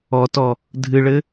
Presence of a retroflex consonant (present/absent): present